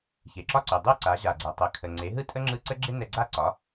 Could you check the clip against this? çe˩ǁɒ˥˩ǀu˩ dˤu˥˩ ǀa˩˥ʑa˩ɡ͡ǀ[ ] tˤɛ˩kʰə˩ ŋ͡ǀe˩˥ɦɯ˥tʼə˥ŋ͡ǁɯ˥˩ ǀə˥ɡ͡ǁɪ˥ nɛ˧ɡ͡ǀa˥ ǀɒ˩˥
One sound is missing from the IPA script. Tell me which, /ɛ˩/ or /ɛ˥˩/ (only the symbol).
ɛ˩